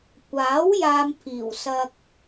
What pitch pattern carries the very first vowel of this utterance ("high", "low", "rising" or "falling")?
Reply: rising